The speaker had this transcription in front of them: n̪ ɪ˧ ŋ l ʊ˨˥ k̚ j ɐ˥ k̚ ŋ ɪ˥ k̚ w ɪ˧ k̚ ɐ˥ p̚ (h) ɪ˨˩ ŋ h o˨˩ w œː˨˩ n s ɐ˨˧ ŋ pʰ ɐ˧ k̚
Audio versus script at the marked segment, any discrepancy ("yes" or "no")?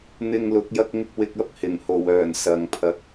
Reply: no